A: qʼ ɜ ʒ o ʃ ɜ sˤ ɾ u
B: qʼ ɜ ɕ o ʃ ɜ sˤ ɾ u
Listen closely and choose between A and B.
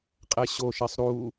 B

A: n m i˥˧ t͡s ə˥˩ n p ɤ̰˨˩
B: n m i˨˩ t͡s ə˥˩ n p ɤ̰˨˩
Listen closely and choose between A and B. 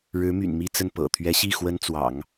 A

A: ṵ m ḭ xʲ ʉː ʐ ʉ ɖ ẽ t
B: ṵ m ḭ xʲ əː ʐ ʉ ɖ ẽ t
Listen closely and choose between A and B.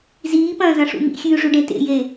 A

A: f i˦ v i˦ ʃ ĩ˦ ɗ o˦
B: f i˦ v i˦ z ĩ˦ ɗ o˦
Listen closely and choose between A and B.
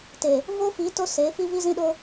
B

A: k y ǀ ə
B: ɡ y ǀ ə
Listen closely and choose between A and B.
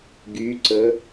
B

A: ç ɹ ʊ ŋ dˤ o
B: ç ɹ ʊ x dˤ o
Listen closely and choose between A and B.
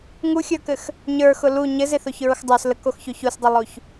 B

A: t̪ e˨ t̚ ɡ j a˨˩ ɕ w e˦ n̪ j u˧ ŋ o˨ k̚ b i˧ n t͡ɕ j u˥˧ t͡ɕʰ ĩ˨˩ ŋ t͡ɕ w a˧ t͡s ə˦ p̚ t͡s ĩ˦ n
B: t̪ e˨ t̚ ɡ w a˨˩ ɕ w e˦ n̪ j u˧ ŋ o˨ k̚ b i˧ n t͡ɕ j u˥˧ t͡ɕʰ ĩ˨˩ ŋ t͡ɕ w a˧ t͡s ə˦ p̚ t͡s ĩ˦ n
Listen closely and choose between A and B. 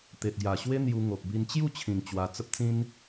A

